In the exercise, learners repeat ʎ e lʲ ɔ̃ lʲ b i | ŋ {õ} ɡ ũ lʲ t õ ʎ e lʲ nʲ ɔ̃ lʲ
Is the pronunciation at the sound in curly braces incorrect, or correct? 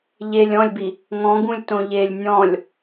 incorrect